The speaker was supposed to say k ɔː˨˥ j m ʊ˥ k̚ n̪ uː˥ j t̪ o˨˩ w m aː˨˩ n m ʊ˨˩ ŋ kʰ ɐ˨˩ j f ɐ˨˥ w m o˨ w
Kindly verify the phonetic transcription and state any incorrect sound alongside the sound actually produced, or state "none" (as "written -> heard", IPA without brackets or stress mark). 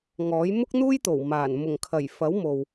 k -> ŋ